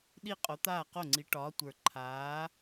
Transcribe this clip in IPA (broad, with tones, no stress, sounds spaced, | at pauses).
ɗ i˥˩ qʼ o˨˥ t̪ aː˥˩ q o˥˩ ŋ͡ǀ i˨˥ ʈ ɒː˨˥ tʷ ə˞˨˩ ǃʰ aː˨˥